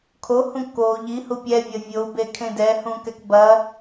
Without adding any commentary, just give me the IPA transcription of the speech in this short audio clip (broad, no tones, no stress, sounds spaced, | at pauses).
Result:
kʰ o h ũ k o ʎ i h u pʲ ɛ vʲ ɐ vʲ o u̯ b e kʰ ẽ d ɛ h ũ k ɛ k b ɐ